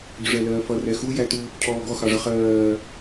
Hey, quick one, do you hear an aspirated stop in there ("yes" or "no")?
yes